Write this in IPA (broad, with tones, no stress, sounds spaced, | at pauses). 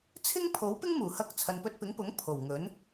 t͡sʰ ɪ˥ ŋ pʰ o˨˥ w p ɪ˥ ŋ m uː˨˩ h ɐ˧ k̚ t͡sʰ ɐ˨ n p ɵ˧ t̚ p ɪ˨˥ ŋ p ʊ˨˥ ŋ pʰ o˨˩ w ŋ ɵ˨˥ n